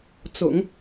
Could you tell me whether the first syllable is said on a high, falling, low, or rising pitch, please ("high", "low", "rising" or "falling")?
low